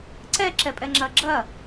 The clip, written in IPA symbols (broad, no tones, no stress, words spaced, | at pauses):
ǀɛ ǁɛpʼɛŋ͡ǁɐːɡ͡ǁɐ